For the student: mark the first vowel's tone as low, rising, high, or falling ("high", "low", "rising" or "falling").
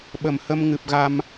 low